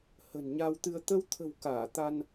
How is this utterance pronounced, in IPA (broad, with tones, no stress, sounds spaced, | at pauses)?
h ə̤˨˩ n ɲ a˧ w t̪ ɨ˧ ə̯ t̪ ə˧ w t̪ʰ ə̤˨˩ w k aː˧˩ t̪ a˧ n